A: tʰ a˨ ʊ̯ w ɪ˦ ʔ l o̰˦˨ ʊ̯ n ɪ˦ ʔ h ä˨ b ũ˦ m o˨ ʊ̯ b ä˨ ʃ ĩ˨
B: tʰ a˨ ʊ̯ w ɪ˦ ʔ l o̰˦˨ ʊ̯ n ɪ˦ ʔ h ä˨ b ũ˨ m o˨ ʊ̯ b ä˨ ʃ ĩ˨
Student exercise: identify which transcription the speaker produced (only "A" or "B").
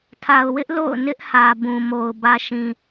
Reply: B